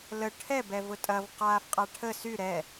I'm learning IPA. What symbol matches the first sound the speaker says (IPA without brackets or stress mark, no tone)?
l